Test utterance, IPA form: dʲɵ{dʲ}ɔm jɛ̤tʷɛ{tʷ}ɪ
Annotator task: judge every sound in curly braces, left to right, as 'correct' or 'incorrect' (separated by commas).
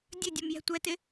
correct, incorrect